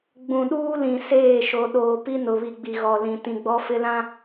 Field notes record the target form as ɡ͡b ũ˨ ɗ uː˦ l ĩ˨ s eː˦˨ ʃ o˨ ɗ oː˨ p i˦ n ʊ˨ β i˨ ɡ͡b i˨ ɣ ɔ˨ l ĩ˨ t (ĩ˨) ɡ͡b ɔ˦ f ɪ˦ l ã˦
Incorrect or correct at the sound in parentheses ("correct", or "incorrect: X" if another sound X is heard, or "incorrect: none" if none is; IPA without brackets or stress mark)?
correct